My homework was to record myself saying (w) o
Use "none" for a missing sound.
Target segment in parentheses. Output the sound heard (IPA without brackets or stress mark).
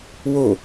w